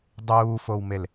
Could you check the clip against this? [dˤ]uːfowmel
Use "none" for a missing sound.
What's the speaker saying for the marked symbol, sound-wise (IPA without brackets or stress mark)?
dˤ